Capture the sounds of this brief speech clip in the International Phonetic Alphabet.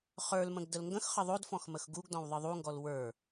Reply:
χ ə˞ l m ə̃ ɡ d ə l ŋ ɡ ə̃ x χ ə ðˤ o d f ɔ̃ x m ə x ɡ u ɡ d ɔ̃ w ðˤ ɨ ðˤ u ŋ ɡ ɔ l w ə˞

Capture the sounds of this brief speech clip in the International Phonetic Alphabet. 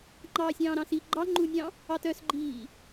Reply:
ŋ͡ǃ ɑː sʲ ɑ̃ː ɾ ɑ̃ s i ɡ͡ǃ ɑ ŋ͡ǃ u nʲ ɑ̃ | ɑ t œ s ɡ͡ǃ iː

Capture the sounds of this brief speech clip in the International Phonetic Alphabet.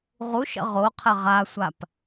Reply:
ʁ u ʃ ə̰ ʁ o qʰ ɘ ʁ a sʷ a p

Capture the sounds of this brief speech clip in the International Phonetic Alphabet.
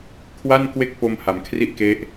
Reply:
kʰ w a˥˩ n k w e˥˩ k̚ p o˧ m h a˩˦ m kʰ r i˥˩ ʔ k e˦˥ ʔ

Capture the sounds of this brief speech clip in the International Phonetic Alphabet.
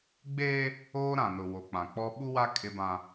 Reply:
ɡ͡b eː˦ | oː˦ ɾ ã˨ n ʊ˨ w o˨ k͡p ã˨ k͡p ɔ˦ ɓ u˦ w a˦ kʼ ɪ˦ b ã˦

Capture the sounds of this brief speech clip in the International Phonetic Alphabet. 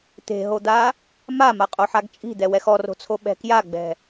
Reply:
t̪ e̤ ɦ o d̪ a | m a m a qʼ o ħ a ɡ t͡ʃʼ i̤ d̪ ɛ w ɛ x ɔ r o̤ t͡sʰ o ɓ ɛ̤ k j a ɡ͡b ɛ̤

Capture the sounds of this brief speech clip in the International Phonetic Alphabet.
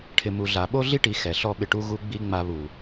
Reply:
ʈʰ ɪ˨ m u˨ ɮ a˨ ɓ o˦ ɮ i˦ ʈ i˨ x ɛ˨ ɬ ɔ˦ ɓ ɪ˧ ʈ u˦ ɣ u˦ ɡ͡b i˦ ŋ͡m a˧ β u˨

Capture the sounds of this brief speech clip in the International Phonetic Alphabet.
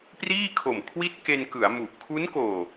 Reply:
p r iː˥˩ kʰ o˨˩ m kʰ w i˥˩ t̚ k e˧ n k ɯ˩˦ a̯ m u˨˩ ʔ kʰ u˦˥ n k oː˨˩

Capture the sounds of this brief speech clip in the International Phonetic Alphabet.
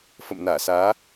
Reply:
f ə̰˧˨ m n aː˧˩ s aː˨˦

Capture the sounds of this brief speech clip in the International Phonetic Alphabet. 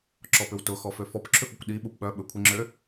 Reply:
ǁ ɔ p ʏ w t ʊ x ɔ f ø f ɔ p ǁʰ ʏ f ʊ kʷ ɗ i ɓ u p ɓ œ ɓ ʏ kʷʰ i ŋ͡ǁ ø

